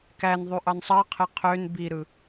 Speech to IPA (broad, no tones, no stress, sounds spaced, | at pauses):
k æ n ðˤ y ʔ ɑ n sˤ ɑ qʰ e qʰ ø n b i ɾ ɯ